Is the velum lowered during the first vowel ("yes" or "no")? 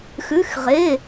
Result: no